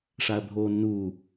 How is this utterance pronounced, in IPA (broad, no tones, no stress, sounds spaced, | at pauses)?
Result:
ʂ a ɐ̯ bʱ oː nː uː